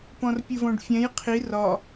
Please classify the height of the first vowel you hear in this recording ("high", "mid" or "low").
mid